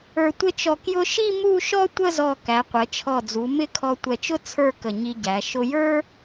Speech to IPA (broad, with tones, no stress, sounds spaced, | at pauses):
ə˞˧ tʷ ɪ˥˧ t͡ʃ ɔ˧ k j ʊ˥ ʃ i˥˧ m u˥˧ ʃ ɔ˥ tʷ ə˥˧ z ɔ˧˩ k æ˩˧ qʷ ɛ˩˧ t͡ʃʰ ɔ˧˩ d͡z u˩˧ m ɪ˥˧ kʰ ɔ˧ tʷ ɛ˧˩ t͡ʃ ʊ˥ t͡sʰ ə˞˥˧ k ə˧˩ ɲ i˧ ɟ æ˩˧ ʃ ʊ˧ j ə˞˥